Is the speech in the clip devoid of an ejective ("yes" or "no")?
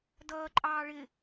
no